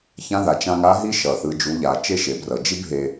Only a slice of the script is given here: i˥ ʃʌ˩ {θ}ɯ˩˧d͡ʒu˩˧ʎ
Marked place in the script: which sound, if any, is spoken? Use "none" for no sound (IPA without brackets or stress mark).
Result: θ